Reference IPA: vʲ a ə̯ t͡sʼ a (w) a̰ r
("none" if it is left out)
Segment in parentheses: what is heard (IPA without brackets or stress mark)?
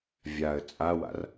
w